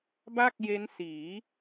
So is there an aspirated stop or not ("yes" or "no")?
no